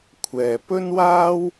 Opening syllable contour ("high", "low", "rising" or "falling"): low